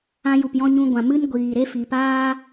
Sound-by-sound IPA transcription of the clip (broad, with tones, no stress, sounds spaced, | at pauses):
ã˧ j u˨ p j ɔ̃˧ ɲ ũ˧ ɡʷ ã˨ m ɨ˦ n ɡʷ iː˨ ɾ e˦ f i˨ p aː˦